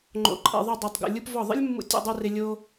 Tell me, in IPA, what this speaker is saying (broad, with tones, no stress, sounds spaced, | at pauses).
ŋ͡ǃ o̰˩˧ ǃʼ ɛ̰˧˩ ðˤ œ˧˩ dˤ ɐ˧˩ tˤ ɡ ṵ˧˩ lʲ u˧ p v ɔ˧˩ ðˤ ə̰˥ lʲ mː ṵ˧ tʲ o̰˥˧ dˤ o˥˧ r ɪ˧ lʲ o˥